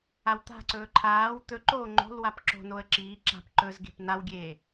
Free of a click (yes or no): no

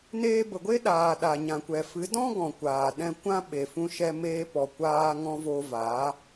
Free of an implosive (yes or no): no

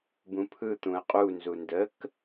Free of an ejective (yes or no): no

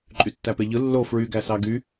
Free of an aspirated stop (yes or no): yes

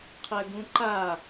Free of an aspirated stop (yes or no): no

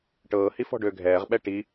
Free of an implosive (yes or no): no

